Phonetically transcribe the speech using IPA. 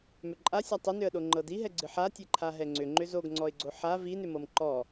mʏǃʼasʲa tˤʏnʏə̯ɗo ŋ͡ǃɤdiɦɛɡ͡ǀɨ ħatʲɛǃʰa ɦɛŋ͡ǀʏ ŋ͡ǃʏzoɡŋ͡ǀɔɪ̯ɡ͡ǀo ħa vinʏmɤm ǃɔ

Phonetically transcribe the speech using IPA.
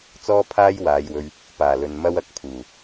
t͡sɔː˥pʰaː˥j waː˨˧jwɵ˧ɥ | paː˨˩lɵ˨n mɐ˥wɐ˧k̚ pʰuː˨˩

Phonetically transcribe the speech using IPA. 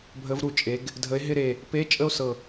bʱə˨˥vɾu˧˩t͡ʃʼe˩˧ɡ | dʱə˨˥e̯ɦɪ˥˧ɾe˧˩ | pe˧˥˧ t͡ʃʼə˥˧o̯sɤ˧˩

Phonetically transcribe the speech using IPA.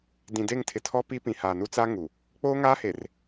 dĩ˨de˦˨ŋtʰɪ˨tʰɔ˦ pi˦pĩ˨haː˨nu˦ t͡sa˦ ŋu˨ | k͡poː˦ŋaː˦he˨r

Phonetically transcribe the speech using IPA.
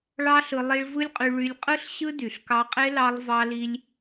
ɭɑ˦ɬɯ˧ lˠi˧ɭvɯ˦lʲqʼy˧ ɭy˧lʲqʼɯ˦ɬ ɕɯ˦dy˨ɬkɑ˧qʼe˦ lɑ˧lˠvɑ˧li˧lʲ

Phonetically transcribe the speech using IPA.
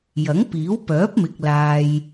jɐ˨˥ŋpiː˨˥wpœː˨˥p̚mɪ˨k̚ laː˨j

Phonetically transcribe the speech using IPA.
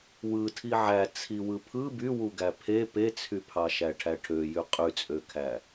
wɯ tʰiʕæ t͡sʰiwɯpʰɯ by wuɡæpʰe pet͡sʰypʰɑʃæ ʈʰæʈʰøjy qʼyt͡sʼøkʰæ

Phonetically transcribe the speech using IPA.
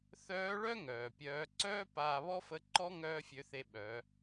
θœː˧˥ɭœ˥ ŋœː˩pʲœː˧˥ ǀœː˥ paː˧βɔ˥fə˧˥ǃɔ˥ ŋœː˥fʲø˧˥θe˧ ɓœ˩˧

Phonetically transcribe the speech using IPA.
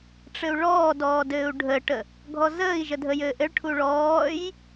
ʈ͡ʂɘu̯ɭɔːdɔː dɘːu̯ɖʱəʈə | ɡʱɔzəːi̯ʒə dʱəjɘːʔɘɭʈʰu ɭɔːj

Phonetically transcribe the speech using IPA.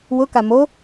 wʊka mo

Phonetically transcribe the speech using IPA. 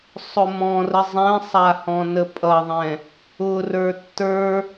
sˤʊmɔ̃rə zˤɛ̃sˤa hɔ̃nəpʼʌðˤɛ̃ | ʊrə˞ tːə˞

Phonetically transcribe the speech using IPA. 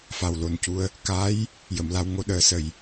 fa˨˩wlo˨˩ncu˧ə̯ | ka˧˥j | jə˨˩˨mla˧w ŋo˧ɗəː˨˩˦ sə˨˩j

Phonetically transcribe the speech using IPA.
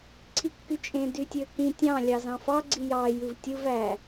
ǀʰikːyt͡ʃʼẽ dytʲøkĩ tʲɑ̃ lʲɑzɑ̃fɑ ɡ͡ǀijɑ jɯvtʲɯv æ

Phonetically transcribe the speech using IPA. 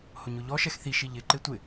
hʊɲʊʎɔ ʃɛxθi ʃiʎɪ ǃetʷɪ

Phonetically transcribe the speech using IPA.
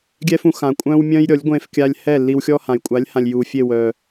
ɡʲɛ˦fũ˧ xã˨ kʷʼœ̃ː˦wmʲœ̃ː˦j ɾʲɔ˨˦lʲ ɡʷẽː˧fkʲa˧lʲ hɛ˦˨lːi˧wxʲɔ˦ hã˨j kʷʼa˨˦lʲhã˨lʲ ju˨ fʲe˦˨wœː˨

